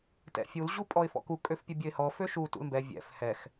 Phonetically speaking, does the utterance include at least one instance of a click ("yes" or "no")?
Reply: no